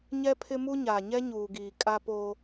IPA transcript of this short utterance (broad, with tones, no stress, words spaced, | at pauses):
ɲɛ˦pʰɪ˦mu˦ ɲaː˨ɲɛ˦ɲuː˨ɡiː˨ kʼa˦po˦